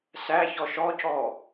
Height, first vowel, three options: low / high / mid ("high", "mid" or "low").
low